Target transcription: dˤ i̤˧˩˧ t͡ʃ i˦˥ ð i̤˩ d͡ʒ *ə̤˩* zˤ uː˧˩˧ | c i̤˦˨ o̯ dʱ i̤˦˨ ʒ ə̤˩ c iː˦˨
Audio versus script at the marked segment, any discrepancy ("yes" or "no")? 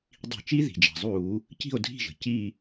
yes